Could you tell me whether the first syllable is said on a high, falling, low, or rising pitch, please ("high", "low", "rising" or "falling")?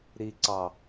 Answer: low